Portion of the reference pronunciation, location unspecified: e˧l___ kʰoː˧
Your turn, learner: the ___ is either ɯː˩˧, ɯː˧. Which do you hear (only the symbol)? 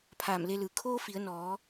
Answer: ɯː˩˧